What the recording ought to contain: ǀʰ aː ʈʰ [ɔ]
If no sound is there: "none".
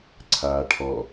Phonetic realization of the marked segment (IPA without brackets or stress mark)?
ɔ